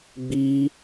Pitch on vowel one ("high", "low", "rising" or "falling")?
high